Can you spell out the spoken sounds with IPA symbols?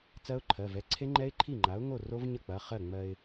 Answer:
t͡s ɜ˦˥ ʊ̯ ǃʰ ɜ˩˧˩ v ɛ˩˧˩ ǀʰ e˦˥ ŋ͡ǃ ɛ˦˥ ɪ̯ ǃʰ i˥˩ ŋ͡ǃ a˩˥ ʊ̯ ŋ o˥˩ r o˦˥ v ɲ ə˥˩ k͡p ɐ˩˧˩ χ ɜ˥˩ ŋ͡m ɜ˧ ɪ̯

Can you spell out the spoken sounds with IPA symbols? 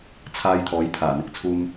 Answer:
t͡sʰ aː˧ j t̪ʰ ɔː˨˥ j t̪ʰ aː˨˩ n̪ ɪ˨˥ k̚ t͡sʰ uː˥ m

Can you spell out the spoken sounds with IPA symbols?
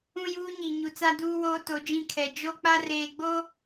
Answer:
ũ˦ j uː˦ ɲ i˨ ɲ u˨ t͡s a˦ d uː˦ w oː˦ t o˨˦ d͡ʒ ĩ˦˨ kʰ ɛ˨ d͡ʒ o˦ k͡p a˦ r eː˨ ɡ͡b o˦

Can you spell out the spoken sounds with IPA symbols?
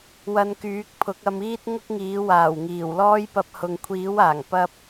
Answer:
w ɐ˧ n k yː˨˥ k̚ pʰ ʊ˨˥ k̚ ɐ˧ m iː˥ t̚ ŋ ʊ˥ k̚ ŋ iː˨˥ w aː˨˩ w ŋ iː˨˩ w l ɔː˥ j p ɐ˧ p̚ h ʊ˨ ŋ kʷʰ iː˨˥ w aː˨˩ ŋ p ɐ˧ p̚

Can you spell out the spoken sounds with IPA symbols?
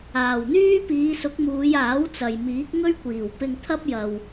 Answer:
aː˨˩ w n̪ yː˥ p iː˨˧ s ʊ˨˥ k̚ m uː˨˧ j aː˨˥ w t͡s ɐ˨ j m iː˨˥ k̚ ŋ ɵ˥ ɥ kʷ iː˨˩ w p ɪ˧ ŋ t̪ʰ ɐ˥ p̚ j ɐ˨ w

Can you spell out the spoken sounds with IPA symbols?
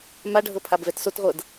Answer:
m a ɖʱ ɤ pʰ a b v ɛ t s o t ʁʷ ɤ d

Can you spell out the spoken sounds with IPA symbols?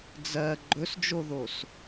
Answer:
d͡z ɜ ɡ͡ǃ ɵ s d͡ʒ o ð o s

